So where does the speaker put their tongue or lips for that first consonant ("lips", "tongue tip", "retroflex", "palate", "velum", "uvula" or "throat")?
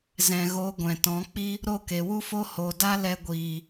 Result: tongue tip